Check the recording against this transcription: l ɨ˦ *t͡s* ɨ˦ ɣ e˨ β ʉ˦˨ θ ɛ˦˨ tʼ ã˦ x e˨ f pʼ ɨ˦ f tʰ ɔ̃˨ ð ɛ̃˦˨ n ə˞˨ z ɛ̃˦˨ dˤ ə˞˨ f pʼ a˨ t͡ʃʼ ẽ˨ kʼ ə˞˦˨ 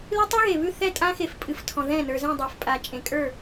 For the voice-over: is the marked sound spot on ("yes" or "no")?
no